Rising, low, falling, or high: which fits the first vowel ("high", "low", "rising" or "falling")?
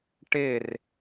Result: falling